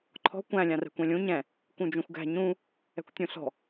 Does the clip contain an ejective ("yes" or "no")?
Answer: no